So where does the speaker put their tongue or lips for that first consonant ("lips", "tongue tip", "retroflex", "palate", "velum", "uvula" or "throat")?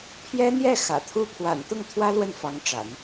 lips